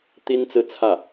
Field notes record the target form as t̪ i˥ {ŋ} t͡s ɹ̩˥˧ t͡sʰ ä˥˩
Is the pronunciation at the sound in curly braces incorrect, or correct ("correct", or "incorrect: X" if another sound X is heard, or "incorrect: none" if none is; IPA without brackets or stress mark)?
incorrect: n